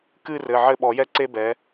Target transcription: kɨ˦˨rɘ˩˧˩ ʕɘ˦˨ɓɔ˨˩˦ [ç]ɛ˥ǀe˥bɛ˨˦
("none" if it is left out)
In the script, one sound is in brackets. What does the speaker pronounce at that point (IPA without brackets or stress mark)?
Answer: j